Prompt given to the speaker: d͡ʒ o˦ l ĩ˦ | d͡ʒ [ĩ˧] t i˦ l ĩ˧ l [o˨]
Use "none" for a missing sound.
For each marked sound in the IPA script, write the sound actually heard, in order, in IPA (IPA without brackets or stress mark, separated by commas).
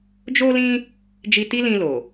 i˧, o˨